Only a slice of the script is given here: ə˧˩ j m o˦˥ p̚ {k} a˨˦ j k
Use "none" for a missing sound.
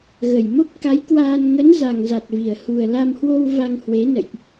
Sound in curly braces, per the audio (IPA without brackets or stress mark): k